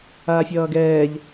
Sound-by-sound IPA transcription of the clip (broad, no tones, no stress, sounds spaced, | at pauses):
aː fʲ ʌː ɡ ɛː ʎ